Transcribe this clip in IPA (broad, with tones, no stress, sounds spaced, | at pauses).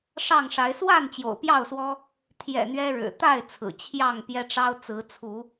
ʂ ɑ˥˨ ŋ ʂ a˨˦ ɪ̯ s w a˥˨ n t͡ɕ j o̰˨˩ ʊ̯ p j ɑ˥˨ ʊ̯ s w ɔ˦ | t̪ʰ j ɛ̰˨˩ n̪ ɥ ɛ˦ ɻ ɻ̩˨˩ t̪ a˥˨ ɪ̯ t͡sʰ ɹ̩˨˩ t͡ɕʰ j ɑ˥˨ ŋ p j ɛ˦ ʈ͡ʂ ɑ˦ ʊ̯ t͡s ɹ̩˨˦ t͡sʰ u˨˦